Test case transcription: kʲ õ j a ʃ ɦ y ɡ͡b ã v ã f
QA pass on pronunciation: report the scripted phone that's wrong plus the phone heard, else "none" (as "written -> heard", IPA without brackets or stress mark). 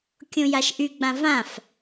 ɦ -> ʔ